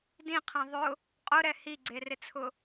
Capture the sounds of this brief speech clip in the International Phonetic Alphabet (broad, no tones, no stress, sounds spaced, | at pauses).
d ĩ qʰ ẽ ðˤ ʊ | qʼ ʊ ɾ ɛ h i ɡ͡ǀ e r ɪ t͡sʰ ʊ